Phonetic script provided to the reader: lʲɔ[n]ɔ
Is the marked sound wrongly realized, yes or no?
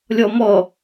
yes